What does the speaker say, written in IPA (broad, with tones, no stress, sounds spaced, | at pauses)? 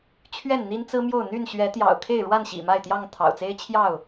t͡ɕʰ ɥ ɛ˥˨ n n̪ i˦ n t͡s ɹ̩˦ m j o˥˨ ʊ̯ n̪ y˥˨ n ɕ ɥ ɛ˨˦ t̪ j ɑ̰˨˩ ʊ̯ kʰ e˥˨ ɪ̯ ɻ w a˥˨ n ɕ ḭ˨˩ m a˥˨ ɪ̯ t̪ j ɑ˥˨ ŋ t̪ʰ ɑ̰˨˩ ʊ̯ t͡s e˦ ɪ̯ t͡ɕʰ j ɑ˥˨ ʊ̯